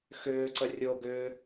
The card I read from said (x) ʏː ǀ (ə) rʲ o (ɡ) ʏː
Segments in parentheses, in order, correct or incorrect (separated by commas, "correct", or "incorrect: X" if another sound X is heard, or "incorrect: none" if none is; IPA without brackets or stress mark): correct, correct, correct